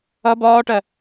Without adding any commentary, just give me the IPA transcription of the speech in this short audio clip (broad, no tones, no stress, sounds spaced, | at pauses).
ʌ b ɒː ʈ ɜ